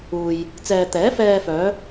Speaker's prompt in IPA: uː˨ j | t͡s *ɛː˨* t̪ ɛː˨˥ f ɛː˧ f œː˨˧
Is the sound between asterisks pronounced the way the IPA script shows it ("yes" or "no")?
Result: yes